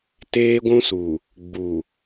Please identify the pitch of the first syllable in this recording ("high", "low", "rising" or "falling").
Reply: high